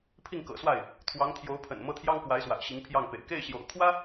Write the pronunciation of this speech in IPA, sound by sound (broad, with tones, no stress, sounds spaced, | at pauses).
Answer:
pʰ i˥˩ ŋ k ɤ̰˨˩ s w a˥˩ ɪ̯ | t̪ʰ w ɑ˧˥ ŋ t̪ʰ j o˧˥ ʊ̯ pʰ ə̰˨˩ n m ɤ˥˩ t̪ʰ j ɑ˥ ŋ k w a˧˥ ɪ̯ s w a̰˨˩ ɪ̯ ɕ i˧˥ ŋ pʰ j ɑ˥˩ ŋ p ḛ˨˩ ɪ̯ k e˥˩ ɪ̯ ɕ j o̰˨˩ ʊ̯ kʰ w ä˥